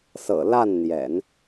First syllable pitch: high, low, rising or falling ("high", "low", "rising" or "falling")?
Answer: low